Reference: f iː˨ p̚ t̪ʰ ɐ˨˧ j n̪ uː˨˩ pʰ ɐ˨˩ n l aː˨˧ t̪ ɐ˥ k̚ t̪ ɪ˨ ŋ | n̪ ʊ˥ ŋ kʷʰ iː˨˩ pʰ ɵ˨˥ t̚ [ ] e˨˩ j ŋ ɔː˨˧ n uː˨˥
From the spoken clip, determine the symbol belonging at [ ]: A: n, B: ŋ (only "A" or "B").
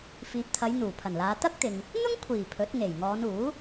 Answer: B